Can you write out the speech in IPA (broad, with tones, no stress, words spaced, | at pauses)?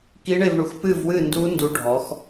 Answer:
ki˦˥ɳe˥˧vɳu˨˥x pɨ˥˧vwɨ˥˧ndu˦˥ ndu˦˥ɖʱɔ˨˥x